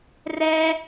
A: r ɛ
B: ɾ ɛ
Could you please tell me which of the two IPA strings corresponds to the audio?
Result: A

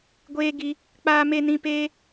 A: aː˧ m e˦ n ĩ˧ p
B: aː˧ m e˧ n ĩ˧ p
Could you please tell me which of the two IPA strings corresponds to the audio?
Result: B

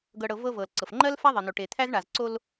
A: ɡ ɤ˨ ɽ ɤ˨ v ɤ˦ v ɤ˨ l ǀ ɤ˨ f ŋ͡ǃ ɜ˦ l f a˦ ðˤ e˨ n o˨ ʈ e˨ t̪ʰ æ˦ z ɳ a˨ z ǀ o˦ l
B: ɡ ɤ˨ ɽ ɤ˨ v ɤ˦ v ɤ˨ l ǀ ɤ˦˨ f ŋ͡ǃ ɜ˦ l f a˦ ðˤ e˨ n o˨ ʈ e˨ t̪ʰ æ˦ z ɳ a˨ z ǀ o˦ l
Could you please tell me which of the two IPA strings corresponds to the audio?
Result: A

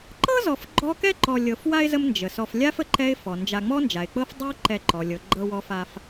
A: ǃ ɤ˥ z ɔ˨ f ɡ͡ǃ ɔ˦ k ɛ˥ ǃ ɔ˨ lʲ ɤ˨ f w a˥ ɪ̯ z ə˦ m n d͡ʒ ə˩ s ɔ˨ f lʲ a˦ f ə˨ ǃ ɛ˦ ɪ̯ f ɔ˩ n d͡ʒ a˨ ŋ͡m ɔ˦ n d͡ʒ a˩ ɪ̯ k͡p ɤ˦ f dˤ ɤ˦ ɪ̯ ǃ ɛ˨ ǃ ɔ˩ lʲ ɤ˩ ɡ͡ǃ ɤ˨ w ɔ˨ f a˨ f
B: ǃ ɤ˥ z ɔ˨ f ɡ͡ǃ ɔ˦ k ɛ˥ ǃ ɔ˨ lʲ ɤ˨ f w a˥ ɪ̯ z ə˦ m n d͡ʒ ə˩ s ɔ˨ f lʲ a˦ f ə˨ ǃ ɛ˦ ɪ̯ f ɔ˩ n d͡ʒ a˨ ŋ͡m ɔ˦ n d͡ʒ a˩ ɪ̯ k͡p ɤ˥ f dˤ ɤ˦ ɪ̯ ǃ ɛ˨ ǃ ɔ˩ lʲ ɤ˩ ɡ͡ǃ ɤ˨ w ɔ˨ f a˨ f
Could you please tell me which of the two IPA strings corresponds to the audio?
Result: A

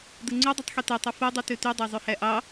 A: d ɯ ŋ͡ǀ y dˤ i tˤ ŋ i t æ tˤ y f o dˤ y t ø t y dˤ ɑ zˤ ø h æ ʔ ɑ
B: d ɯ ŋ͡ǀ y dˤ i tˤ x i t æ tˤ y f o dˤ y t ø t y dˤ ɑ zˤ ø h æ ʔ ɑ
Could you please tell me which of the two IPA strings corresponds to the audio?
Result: B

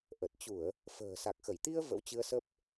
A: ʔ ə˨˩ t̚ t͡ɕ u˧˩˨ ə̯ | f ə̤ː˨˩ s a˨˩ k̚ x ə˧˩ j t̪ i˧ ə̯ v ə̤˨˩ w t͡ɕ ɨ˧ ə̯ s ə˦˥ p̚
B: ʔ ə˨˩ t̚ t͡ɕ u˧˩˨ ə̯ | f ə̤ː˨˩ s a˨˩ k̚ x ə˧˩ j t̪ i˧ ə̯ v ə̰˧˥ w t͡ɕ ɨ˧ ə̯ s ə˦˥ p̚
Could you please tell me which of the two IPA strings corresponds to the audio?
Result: B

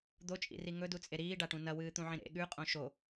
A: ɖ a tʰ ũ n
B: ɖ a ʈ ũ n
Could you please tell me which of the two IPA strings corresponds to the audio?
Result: B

